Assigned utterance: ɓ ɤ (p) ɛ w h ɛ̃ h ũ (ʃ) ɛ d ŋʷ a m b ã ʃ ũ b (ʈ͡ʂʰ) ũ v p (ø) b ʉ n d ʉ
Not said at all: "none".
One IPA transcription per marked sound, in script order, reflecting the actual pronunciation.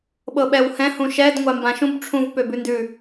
ɓ, ʃ, ʈ͡ʂʰ, ø

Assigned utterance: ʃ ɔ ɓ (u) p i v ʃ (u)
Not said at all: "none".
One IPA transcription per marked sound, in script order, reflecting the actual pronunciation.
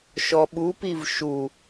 u, u

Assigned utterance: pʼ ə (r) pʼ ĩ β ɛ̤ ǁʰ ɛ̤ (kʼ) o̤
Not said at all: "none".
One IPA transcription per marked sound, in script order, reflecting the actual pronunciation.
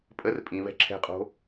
r, qʼ

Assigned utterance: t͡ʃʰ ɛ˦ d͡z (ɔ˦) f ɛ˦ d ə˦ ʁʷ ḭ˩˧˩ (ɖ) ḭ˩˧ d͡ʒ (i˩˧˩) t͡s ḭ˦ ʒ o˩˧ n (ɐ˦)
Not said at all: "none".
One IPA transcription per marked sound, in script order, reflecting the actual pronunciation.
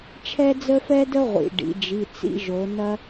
ə˦, ɖ, i˩˧˩, ɐ˦

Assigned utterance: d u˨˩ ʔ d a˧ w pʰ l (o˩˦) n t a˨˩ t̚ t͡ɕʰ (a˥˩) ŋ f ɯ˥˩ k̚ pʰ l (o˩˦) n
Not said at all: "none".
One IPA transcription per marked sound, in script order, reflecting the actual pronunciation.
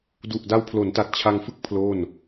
o˩˦, a˧, o˥˩

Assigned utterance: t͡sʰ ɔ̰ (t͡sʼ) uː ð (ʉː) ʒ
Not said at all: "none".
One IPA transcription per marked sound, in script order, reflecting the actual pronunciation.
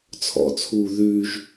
t͡sʰ, ʉː

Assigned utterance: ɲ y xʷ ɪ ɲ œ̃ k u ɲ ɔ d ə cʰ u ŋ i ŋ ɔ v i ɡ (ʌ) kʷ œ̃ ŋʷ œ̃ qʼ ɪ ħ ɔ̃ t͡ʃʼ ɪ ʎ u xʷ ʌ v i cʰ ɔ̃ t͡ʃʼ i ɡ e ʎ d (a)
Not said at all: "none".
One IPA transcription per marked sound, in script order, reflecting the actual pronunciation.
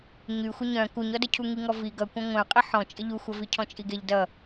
ʌ, ʌ

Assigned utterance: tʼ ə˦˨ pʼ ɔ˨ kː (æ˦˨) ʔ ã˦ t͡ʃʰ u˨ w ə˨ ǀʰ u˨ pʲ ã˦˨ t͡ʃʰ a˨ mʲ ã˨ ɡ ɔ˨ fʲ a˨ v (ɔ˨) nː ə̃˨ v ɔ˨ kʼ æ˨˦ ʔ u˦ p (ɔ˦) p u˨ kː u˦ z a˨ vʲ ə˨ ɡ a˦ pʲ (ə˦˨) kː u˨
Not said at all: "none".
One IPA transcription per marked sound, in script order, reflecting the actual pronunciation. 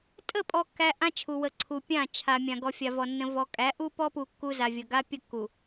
æ˨, ɔ˨, ɔ˦, ə˦˨

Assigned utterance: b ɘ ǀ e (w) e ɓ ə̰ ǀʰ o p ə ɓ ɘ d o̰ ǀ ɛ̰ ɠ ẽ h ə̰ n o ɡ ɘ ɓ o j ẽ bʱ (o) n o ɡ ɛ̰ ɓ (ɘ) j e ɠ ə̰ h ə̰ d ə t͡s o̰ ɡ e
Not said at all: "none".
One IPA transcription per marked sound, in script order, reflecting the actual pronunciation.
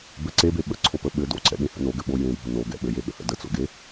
b, o, ɘ

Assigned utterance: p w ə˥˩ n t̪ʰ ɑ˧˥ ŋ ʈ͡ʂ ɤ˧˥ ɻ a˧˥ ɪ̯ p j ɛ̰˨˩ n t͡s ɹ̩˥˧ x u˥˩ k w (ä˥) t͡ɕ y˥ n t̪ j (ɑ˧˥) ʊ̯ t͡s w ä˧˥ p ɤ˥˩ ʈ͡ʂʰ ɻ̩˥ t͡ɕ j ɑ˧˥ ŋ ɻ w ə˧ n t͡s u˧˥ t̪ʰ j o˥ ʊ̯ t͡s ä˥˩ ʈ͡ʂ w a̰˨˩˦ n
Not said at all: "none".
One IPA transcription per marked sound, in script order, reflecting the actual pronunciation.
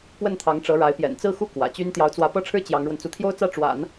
ä̰˨˩, ɑ˧˥

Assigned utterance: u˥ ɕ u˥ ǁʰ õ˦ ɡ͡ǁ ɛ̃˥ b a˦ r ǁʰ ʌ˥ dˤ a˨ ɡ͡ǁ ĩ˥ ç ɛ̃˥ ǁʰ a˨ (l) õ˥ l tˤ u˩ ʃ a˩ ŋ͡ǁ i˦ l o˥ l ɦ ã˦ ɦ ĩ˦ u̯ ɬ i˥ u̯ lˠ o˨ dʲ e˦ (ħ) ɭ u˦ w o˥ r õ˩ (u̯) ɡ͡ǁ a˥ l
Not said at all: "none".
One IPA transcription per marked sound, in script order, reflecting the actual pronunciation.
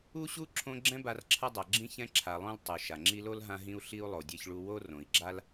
lˠ, ç, i̯

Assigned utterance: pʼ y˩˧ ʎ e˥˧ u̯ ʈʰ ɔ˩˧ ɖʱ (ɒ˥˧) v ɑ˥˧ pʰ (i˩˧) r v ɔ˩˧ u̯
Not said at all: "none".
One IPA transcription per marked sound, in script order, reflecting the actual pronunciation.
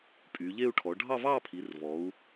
ɑ˥˧, i˩˧

